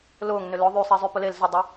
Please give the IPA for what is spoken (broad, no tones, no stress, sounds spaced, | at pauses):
l ʊː ŋ n ʏ l ʊ ðˤ y sˤ i zˤ y p ʊ l e l z ʊ dˤ ə